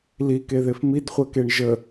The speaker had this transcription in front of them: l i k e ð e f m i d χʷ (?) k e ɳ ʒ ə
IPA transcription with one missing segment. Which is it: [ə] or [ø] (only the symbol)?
ə